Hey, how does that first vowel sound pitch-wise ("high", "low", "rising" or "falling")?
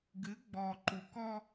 rising